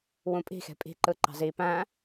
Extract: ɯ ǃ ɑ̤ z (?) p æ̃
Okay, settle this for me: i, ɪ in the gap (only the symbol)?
i